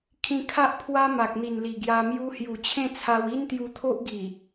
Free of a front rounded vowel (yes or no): yes